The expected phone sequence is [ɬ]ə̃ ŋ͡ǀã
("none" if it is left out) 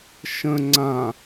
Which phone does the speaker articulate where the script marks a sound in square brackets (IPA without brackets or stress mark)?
ʃ